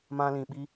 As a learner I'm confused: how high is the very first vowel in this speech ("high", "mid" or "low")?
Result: low